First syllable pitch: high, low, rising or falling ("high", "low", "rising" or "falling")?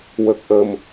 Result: low